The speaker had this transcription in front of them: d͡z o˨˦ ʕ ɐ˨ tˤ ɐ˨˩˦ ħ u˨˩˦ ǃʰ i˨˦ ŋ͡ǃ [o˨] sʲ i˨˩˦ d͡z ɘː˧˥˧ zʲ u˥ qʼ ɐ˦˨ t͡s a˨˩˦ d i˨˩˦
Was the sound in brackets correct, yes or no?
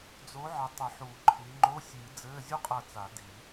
no